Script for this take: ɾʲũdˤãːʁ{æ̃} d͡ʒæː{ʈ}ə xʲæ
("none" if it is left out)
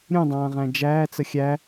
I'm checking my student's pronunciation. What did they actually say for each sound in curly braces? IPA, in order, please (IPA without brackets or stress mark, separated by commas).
æ̃, t͡s